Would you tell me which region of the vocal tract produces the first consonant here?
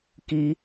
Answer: velum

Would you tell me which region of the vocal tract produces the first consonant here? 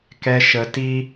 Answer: velum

